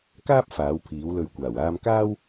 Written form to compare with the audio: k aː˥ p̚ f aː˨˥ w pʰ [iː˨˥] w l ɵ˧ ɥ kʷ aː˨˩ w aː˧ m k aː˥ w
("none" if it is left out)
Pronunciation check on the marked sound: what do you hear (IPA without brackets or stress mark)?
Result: iː˨˥